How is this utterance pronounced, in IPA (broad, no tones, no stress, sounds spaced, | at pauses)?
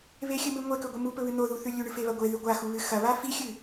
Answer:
β e xʲ ɨ m ɨ ŋʷ e k ɵ ɡʷ ɨ m u p ɵ β ɨ n̪ o ð u θ ʉ lʲ ʉ ɳ ɨ f e β ɐ ɡʷ e ð ʉ ɡʷ a x u β ɨ x ɐ β a f i xʲ ɨ